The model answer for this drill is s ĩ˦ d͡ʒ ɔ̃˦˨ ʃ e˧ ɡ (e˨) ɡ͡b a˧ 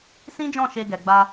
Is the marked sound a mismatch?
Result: yes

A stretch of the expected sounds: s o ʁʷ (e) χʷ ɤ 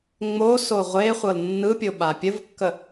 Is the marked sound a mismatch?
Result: no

